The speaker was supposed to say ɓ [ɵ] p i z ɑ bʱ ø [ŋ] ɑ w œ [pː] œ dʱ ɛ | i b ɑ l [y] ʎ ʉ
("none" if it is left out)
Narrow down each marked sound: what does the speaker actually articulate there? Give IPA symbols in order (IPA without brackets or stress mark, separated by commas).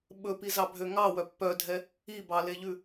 ɵ, ŋ, pː, e